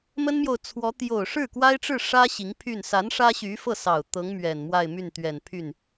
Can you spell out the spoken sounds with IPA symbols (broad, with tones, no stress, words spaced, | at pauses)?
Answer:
mə˥nmjo˨ʊ̯t͡sʰwɔ˧˥ t̪jo˨˩ʊ̯ʂɻ̩˥˩kwa˥ɪ̯ʈ͡ʂɻ̩˥˩ ʂä˥ ɕi˧˥ŋpʰy˥˩n sa˧˥n ʂä˥ɕy˧˥fɤ˥˩sɑ˨˩ʊ̯ t̪ɤ˧˥ŋ mɥɛ˨˩nmwa˥˧ɪ̯my˥˩nt̪ɥɛ˨˩n pʰy˥˩n